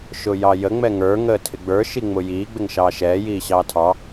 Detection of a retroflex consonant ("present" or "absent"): absent